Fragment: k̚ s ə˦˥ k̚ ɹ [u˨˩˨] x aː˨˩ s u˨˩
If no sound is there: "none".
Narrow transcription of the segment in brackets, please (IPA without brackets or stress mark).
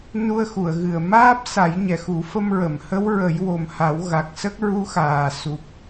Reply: u˧˥